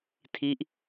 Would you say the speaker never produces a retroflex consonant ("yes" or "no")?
yes